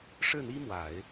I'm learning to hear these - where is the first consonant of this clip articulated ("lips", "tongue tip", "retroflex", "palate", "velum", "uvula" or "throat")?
retroflex